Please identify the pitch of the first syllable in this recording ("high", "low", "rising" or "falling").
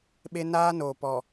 high